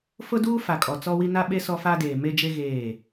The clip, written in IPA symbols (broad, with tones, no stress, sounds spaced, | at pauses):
f ʊ˦ d uː˦ f a˨ kʼ ɔ˨ t͡s ɔ˦ w i˦ n a˦ ɓ e˦ s ɔ˦ f a˦ d eː˨ m e˦ d͡ʒ e˦ ɣ eː˦˨